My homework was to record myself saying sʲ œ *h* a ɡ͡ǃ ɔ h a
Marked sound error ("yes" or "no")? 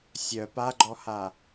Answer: yes